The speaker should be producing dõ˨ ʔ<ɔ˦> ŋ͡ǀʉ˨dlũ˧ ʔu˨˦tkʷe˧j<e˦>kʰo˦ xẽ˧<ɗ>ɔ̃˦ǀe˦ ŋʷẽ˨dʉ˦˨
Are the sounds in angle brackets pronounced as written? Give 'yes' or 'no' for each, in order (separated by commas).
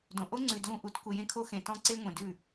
no, no, no